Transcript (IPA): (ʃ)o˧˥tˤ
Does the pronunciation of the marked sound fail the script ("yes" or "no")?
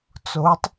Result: yes